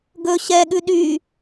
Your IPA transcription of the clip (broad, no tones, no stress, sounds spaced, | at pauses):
ɡ ɵ ɕ ɛ ɠ ʉ ɗ y